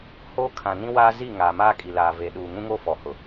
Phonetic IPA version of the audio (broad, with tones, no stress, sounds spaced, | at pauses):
h oː˦ kʰ ã˨ n ĩ˦ w aː˦ z i˦˨ ŋ aː˨ m aː˦ kʼ i˨ l aː˨ v e˨ ɗ uː˨ ŋ ũ˦ ŋ o˦ f ɔ˨ h ʊ˨